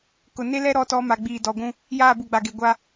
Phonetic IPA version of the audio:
k ʊ˨ n e˦ l ɛ˦ ɾ ɔ˦ t ɔ˦ m a˨ ɡ͡b iː˨ d ɔ˨ ɡʷ ũ˦ | j aː˦˨ b u˨ ɡ͡b a˨ ɡ e˨ ɡʷ a˦

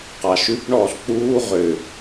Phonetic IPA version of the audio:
q ɑ ʃ ʉ p ɳ ɔː ɬ k͡p uː ʁ ʏ

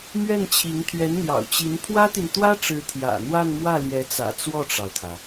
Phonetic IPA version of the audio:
m ɥ ɛ˥˩ n t͡ɕʰ i˧˥ ŋ t̪ʰ ɥ ɛ˧˥ n n̪ j ɑ̰˨˩ ʊ̯ t͡ɕ i˧˥ n pʰ w ä˥ t̪ i˨ n t̪ w ä˥ ʈ͡ʂ ɻ̩˧˥ t̪ʰ j ä̰˨˩ n̪ w a˥˧ n m w ä˥˩ l j ɛ˧˥ t͡s ä̰˨˩ t͡s w ɔ˥˩ ʈ͡ʂ ɑ˩ ʊ̯ t̪ʰ ä˩

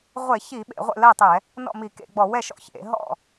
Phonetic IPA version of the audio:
ʁʷ e˧˩˧ ç i˧˩˧ ɓ ḛ˧˩˧ ʁʷ ḛ˥˩ l ɜ˥˩ tˤ ɛ˧˩˧ | n ɔ̰˥˩ m i˧˩˧ k ḛ˧˩˧ ɡ͡b ɔ˧˩˧ w ɛ˥˩ ʃ ɔ̰˥˩ ç ḛ˧˩˧ ɦ ɔ̰˥˩

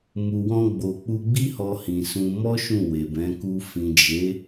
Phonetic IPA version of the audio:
m u˨ w ɔ̃˧ ɡ͡b o˨ k͡p u˧ ɡ͡b i˦ h ɔ˧ h ĩ˨ s ũ˧ m ɔ˦ ʃ ũ˦˨ w e˨ b ɛ̃˨˦ k u˧ f ĩ˨ d͡ʒ e˨˦

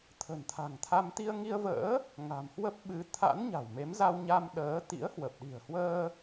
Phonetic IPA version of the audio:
t̪ʰ ə̤˨˩ n t̪ʰ a̤˨˩ ŋ t̪ʰ a˧ m t̪ i˧ ə̯ ŋ i˧ ə̯ v ə̰ː˧˥ | ŋ a̤˨˩ m h w ə˦˥ p̚ ɓ ɨ˨˦ t̪ʰ a̰˧˥ n ɲ a̤˨˩ w m e˨˦ m z a˧ w ɲ a˧ m ɗ əː˨˦ t̪ ḭ˧˥ ə̯ h w ə˨˩ p̚ ɗ i̤˨˩ ə̯ h w əː˧

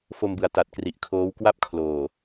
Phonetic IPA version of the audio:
f o˧ m b ɯ˩˦ a̯ t a˨˩ t̚ k r i˨˩ ʔ kʰ oː˦˥ w k w a˥˩ p̚ kʰ l oː˨˩

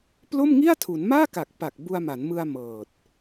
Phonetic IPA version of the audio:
p l o˥˩ m ŋ i˥˩ a̯ tʰ u˩˦ n m aː˥˩ k a˨˩ k̚ p a˨˩ k̚ b u˧ a̯ m a˩˦ n m ɯ˧ a̯ m ɤː˨˩ t̚

